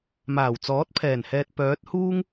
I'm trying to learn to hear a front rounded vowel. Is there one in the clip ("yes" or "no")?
yes